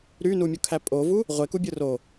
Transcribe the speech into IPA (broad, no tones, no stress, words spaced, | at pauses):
ɾynumʲukʰæ pʼovu | ʁʷekubʲɯ ro